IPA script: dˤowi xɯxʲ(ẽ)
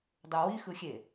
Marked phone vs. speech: incorrect: e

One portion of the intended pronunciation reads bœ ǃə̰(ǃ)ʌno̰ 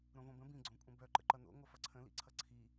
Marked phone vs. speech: correct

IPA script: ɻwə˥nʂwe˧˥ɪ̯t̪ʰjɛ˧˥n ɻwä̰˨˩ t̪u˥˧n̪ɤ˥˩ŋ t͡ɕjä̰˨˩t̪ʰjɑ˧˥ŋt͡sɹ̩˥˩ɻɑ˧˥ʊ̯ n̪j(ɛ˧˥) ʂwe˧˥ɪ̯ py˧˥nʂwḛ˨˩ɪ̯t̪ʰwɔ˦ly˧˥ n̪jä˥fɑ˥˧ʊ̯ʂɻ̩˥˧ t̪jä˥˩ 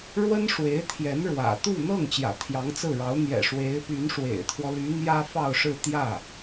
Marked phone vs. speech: incorrect: ɛ̰˨˩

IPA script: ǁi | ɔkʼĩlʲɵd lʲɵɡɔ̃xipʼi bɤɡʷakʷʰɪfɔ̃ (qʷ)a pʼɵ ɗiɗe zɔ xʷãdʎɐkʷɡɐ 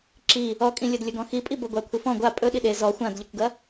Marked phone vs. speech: incorrect: ɡʷ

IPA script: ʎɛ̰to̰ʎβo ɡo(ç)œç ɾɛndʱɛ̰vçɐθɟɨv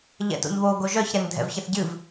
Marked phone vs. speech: incorrect: ʒ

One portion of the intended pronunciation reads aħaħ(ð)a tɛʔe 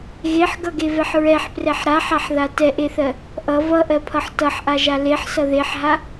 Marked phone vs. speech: correct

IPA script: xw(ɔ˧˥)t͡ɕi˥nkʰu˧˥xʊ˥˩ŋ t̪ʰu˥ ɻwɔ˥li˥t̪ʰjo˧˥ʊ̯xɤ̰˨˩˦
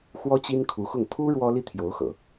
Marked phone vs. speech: incorrect: ɔ˥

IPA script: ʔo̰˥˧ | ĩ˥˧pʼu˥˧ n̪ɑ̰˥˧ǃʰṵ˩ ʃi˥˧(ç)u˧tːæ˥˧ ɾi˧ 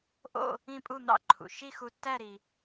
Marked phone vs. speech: incorrect: x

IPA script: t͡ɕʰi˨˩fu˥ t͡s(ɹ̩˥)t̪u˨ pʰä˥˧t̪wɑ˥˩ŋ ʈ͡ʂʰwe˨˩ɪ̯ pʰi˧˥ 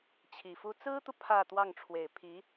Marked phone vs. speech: correct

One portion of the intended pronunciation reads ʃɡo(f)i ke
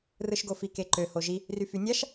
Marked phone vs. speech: correct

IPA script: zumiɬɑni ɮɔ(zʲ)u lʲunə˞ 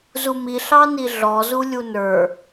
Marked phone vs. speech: incorrect: z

